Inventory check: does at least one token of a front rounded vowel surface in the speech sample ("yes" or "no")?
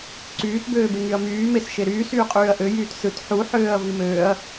yes